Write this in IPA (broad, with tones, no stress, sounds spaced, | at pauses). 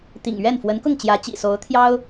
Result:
t̪ ḭ˨˩ ŋ ɥ ɛ˥˩ n f w ə˧˥ n k ʊ˥˩ ŋ t͡ɕ j ä˧˥ t͡ɕ ḭ˨˩ s o˧˥ ʊ̯ t̪ʰ j ɑ˥ ʊ̯